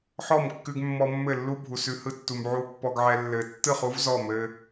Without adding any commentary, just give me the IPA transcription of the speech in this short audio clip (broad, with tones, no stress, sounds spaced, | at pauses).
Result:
ħ ɔ˦˨ m kː ʉ˧ ɡ mː ɔ˧ mː ɘ˦˨ lː u˦ bʱ u˨ s ʉ˧ h ɯ˧ tː u˨ m ʕ u˧ pː ɔ˧ ɡ ʕ ɛ˧ lː ɘ˧ tː ɯ˦˨ χ u˦ v z ɔ˦˨ m ɘ˧